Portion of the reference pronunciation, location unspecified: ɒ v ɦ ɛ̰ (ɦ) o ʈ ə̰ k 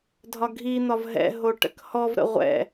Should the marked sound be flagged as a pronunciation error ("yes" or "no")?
no